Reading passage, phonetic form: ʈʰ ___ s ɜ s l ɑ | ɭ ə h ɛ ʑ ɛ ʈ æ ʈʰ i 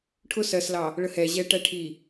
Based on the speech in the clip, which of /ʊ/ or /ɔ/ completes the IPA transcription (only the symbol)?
ʊ